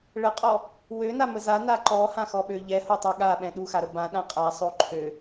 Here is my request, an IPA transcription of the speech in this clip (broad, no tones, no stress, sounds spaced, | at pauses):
ɭ ə qʼ ɔ | w ø n a m ə z a n a ǃ ɔ h ã x ɔ ɓ ø ʎ ɛ h o tˤ o ɠ a ɓ ɛ̃ ɗ u x a ɾ ə b ã ɗ ã qʼ a sˤ o ǃʰ ø